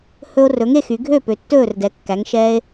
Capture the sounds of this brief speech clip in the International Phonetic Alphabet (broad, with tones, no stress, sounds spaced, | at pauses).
h ɵ˧ o̯ r ɵ˩˧ ŋ e˥˩ x y˩˧ ɡʱ ø˥˩ p ø˩˧ tː ɵː˥˩ r d ɛ˩˧ kː æ˩˧ ŋ ʃ ɛː˧ e̯